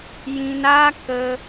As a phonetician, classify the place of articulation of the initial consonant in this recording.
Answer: palatal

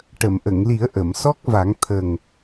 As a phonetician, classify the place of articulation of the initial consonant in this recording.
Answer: retroflex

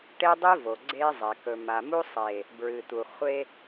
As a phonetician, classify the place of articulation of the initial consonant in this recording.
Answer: retroflex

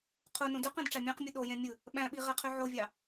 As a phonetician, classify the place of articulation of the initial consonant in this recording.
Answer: uvular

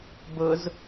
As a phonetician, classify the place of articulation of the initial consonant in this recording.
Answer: labial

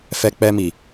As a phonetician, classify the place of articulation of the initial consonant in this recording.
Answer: labial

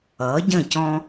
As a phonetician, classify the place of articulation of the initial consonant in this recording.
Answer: palatal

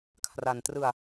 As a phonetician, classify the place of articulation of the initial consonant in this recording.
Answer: velar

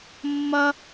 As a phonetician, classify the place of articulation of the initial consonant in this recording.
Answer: labial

